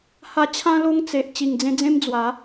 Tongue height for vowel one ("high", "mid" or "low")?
low